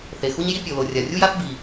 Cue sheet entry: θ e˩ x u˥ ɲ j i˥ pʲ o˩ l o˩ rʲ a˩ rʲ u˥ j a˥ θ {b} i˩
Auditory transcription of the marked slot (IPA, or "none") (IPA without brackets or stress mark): b